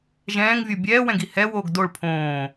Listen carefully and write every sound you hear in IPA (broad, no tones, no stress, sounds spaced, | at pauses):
ʒ ɛ̃ː ŋ vʲ o bʲ ɛː w ɛ̃ ɡ i h ɛ w oː ɡ d o ɭ pʰ õː